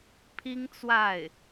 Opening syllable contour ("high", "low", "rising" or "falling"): high